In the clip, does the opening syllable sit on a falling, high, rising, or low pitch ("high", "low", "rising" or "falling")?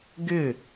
falling